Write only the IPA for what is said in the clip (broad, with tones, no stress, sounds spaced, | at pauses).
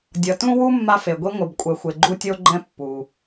dʲ ʌ˩ t ũ˥ w u˥ mː a˧ f e˩ ɡʷ i˧ ŋʷ ɯ˩ b kʷʼ ɛ˩ xʷ e˩ ɡ͡ǃ u˧ tʲ o˧ ɡ͡ǃ ɛ̃˧ pː u˩